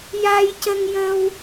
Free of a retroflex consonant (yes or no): yes